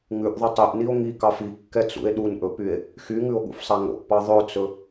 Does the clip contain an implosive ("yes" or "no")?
yes